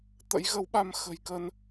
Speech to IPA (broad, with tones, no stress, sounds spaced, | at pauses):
t̪ ə̰˧˥ j ɣ ə˨˦ w ɓ a˧ m x ə̤˨˩ j k ə˧ n